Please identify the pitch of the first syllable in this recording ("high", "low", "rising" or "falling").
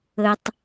low